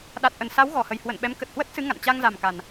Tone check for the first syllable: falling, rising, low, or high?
low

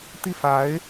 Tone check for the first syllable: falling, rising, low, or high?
falling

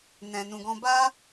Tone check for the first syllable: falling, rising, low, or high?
low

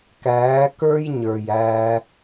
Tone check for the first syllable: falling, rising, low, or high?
rising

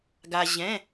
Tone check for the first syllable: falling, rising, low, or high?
low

